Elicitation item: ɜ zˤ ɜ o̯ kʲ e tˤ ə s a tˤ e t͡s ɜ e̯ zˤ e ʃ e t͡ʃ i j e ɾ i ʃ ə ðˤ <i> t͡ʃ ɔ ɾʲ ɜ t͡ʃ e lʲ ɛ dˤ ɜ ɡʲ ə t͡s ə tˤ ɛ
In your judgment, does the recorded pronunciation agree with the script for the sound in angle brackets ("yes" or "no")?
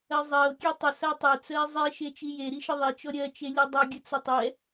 yes